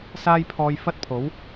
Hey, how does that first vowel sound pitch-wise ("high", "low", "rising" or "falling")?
high